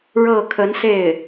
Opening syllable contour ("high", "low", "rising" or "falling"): falling